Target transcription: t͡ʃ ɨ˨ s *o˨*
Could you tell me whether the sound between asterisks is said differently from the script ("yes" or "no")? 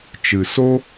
yes